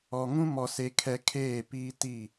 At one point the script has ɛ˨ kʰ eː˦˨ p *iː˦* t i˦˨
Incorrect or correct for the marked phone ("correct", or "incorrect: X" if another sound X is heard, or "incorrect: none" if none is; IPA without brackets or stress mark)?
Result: correct